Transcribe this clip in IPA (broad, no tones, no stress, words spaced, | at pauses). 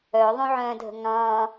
œðˤõʕœ̃ːdʱə̤ ŋɑ̃